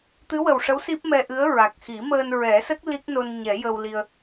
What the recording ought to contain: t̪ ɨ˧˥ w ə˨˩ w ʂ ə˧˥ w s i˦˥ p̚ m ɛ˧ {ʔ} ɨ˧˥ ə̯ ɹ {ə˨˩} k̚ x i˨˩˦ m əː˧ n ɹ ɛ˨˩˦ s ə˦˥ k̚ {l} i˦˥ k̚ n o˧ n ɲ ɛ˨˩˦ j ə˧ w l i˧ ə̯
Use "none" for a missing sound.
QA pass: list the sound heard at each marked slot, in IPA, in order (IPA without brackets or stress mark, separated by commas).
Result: ʔ, a˨˩, l